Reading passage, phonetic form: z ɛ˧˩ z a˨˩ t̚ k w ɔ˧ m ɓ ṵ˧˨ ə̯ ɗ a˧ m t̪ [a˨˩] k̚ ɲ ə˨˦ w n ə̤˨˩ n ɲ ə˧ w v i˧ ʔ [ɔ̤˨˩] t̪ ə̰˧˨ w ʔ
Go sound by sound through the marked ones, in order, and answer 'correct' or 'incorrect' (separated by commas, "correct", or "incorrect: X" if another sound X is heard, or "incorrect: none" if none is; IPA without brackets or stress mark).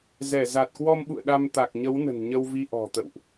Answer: correct, correct